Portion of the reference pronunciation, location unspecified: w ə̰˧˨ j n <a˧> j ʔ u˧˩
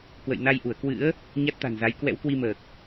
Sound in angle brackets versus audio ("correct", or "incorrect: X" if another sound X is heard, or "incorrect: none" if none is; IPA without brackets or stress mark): correct